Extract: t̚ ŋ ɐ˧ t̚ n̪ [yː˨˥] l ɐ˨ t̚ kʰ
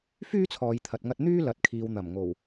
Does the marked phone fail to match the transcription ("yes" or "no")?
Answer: yes